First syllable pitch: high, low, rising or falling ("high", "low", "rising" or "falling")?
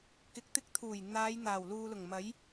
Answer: rising